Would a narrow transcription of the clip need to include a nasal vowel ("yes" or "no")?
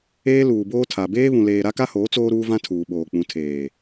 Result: yes